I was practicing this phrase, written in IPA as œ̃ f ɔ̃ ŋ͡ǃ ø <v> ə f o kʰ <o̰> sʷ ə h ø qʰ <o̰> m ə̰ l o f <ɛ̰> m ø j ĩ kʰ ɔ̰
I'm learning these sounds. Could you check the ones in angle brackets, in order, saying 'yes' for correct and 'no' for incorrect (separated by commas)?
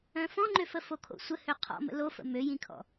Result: no, yes, no, no